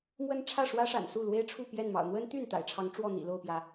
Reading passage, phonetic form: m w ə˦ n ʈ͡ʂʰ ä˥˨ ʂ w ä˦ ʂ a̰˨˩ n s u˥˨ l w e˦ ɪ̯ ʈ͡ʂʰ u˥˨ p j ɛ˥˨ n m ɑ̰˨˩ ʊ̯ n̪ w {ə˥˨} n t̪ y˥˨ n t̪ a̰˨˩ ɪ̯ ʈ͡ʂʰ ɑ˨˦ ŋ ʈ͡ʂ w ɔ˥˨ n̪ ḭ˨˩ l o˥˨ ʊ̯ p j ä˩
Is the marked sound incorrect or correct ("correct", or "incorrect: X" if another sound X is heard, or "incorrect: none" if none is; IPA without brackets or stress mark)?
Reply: incorrect: ə˦